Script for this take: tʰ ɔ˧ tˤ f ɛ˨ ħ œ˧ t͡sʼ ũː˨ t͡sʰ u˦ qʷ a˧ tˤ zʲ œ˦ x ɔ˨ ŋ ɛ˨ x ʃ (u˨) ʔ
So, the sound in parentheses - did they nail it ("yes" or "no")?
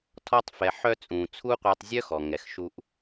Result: no